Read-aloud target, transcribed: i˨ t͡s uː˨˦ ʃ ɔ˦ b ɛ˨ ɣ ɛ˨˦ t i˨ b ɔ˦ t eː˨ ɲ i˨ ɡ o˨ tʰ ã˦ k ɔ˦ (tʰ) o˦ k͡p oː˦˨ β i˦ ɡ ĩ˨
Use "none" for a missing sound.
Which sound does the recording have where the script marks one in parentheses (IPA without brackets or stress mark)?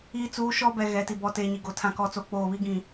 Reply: t͡s